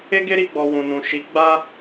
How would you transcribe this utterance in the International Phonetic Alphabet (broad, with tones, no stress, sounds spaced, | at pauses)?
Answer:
e˦ ɡ e˦ ɾ i˧ ɡ͡b ɔ˨ w ũ˨ n ũ˨ ʃ i˨˦ ɡ͡b a˦